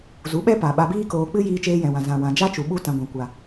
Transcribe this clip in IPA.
z u˨˦ ɓ ɛ˦ p a˨ ɓ a˧ b iː˦ k oː˧ k͡p ɨ˦ j iː˧ t͡ʃ eː˧ j ɛ̃˨ w ã˨ z ã˨ w ã˨ d͡ʒ a˦ t͡ʃ u˨ ɓ u˦ t ã˧ ɡʷ ã˧ kʷ a˧

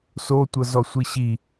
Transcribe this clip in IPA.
s o tʷ ɤ z ɔ sʷ i ɕ i

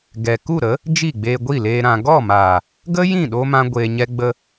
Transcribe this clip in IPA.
ɡ ɛ˨ k u˦˨ ɾ ə˨˦ | d͡ʒ i˦˨ ɡ͡b eː˧ ɡʷ i˦˨ l eː˧ ɾ ã˨ ɡ ɔ˦˨ m aː˨ | ɡ ə˦ j ĩ˦˨ ɗ oː˦ m ã˦ ɡʷ eː˧ ɲ ɛ˦ ɡ͡b ə˦

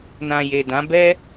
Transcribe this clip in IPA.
n ã˨ j e˨ d ã˨˦ b ɛ˦

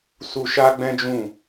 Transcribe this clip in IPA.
s u˧ ʃ a˦ ɡ͡b ɛ̃˦ d͡ʒ ũ˦˨

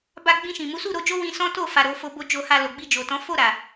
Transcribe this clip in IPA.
b a˨ ɡ͡b ĩ˧ ʃ ĩ˨ m u˨˦ s u˦˨ ɾ o˧ d͡ʒ o˦ w ĩ˧ s ɔ̃˦ t o˦˨ f a˨ ɾ o˧ f o˧ b o˨ d͡ʒ o˨ h a˨ l o˨ ɡ͡b i˧ d͡ʒ o˨ t ɔ̃˨˦ f o˦˨ ɾ a˨

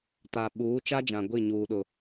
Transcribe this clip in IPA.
t a˨ ɓ uː˨˦ t͡ʃ a˦ d͡ʒ ã˨ ɡʷ i˦˨ ɲ uː˨ ɗ ʊ˨

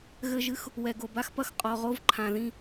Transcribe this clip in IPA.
ɣ ɘ˦ ʒ ɨ˦ x | w ɛ˨ ɡ o˨ b a˦ x p ɐ˦ x qʼ ɔ˨ ʁ o˦ v ǃʰ ã˨ ð ĩ˦

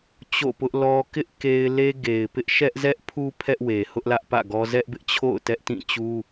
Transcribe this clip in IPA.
t͡ɕ o̰˦˨ p ʊ˦ ʔ l ɔ˦ k ɪ˦ ʔ k e˦ ɪ̯ l e˦ ɡ e˨ ɪ̯ p ɪ˦ ʔ ʃ ɛ˦ ʔ z ɛ˦ ʔ pʰ u˦ pʰ ɛ˦ ʔ w e˨ h ʊ˦ ʔ l ä˦ ʔ p ä̰˦˨ ɡ ɔ˦ z ɛ˦ ʔ b ɪ˦ ʔ t͡ɕʰ o̰˦˨ ʊ̯ t ɛ˦ ʔ t ĩ˦˨ t͡ɕ u˦

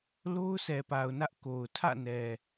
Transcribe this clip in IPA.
l o˦ ʊ̯ s ɛ˨ p a˨ ʊ̯ n ä˦ ʔ k o˨ ʊ̯ tʰ ä̰˦˨ n ɛ˨

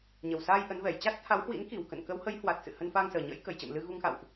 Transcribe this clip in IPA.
ɲ ə˨˩ w s aː˧ j ʔ ə˨˦ n v ɛ˨˩ j t͡ɕ a˦˥ t̚ t̪ʰ a˨˦ w h w ḭ˧˥ n k i˨˩ w k ə̰˧˨ n k ə˨˦ w h ə˨˦ j h w a˨˩ t̚ s ɨ̰˧˨ h ə˧ n f aː˧ ŋ s əː˨˩ ɲ ə̰˧˥ j k ə˧˩ j t͡ɕ ə̰ː˧˨ m l ɨ˧ ɣ u˧ ŋ x a̰˧˨ w ʔ

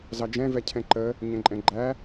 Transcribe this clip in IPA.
z ɑ d͡ʒ ɛ̃ v ɛ cʰ ɛ̃ ǃ ə | ɲ ɛ̃ ǃʼ ɛ̃ ɡ͡ǃ æ

